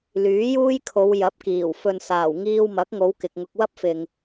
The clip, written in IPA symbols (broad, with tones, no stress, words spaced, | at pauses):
lyː˨˥juː˥jkʰo˨˧w jɐ˨˥p̚kiː˨˩w fɵ˨nsaː˨˩w ŋiː˧wmɐ˨˥k̚ŋo˨˧w kɪ˨k̚ŋʊ˧k̚ wɐ˥p̚fɪ˨ŋ